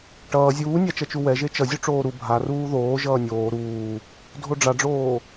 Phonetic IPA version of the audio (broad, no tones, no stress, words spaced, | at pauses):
ʈʌː zʲuːnʲat͡ʃʌt͡ʃu wɛʒe t͡ʃʌzʲu ʈ͡ʂoːɾu bʱa ruːðoː ʒʌːnʲoː ɾuː | dʱoɖ͡ʐaɖ͡ʐoː